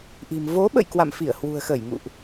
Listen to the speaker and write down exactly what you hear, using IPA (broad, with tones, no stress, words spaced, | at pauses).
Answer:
ʔi̤˨˩m vo˨˦ ɓə̰˧˨j kwa̰˧˨mfi˧˩ə̯ hwṳ˨˩ə̯xə˧˩jŋṵ˧˨ʔ